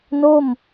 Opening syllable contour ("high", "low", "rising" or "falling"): falling